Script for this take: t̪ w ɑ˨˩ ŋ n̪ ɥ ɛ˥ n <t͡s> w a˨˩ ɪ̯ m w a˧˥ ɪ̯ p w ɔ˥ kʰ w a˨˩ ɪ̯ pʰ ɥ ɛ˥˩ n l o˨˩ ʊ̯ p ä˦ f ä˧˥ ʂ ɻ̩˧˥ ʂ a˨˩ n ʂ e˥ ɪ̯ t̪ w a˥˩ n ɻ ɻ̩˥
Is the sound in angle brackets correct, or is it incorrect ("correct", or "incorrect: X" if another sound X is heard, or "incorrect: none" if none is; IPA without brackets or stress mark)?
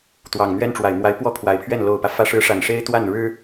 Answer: incorrect: ʈ͡ʂ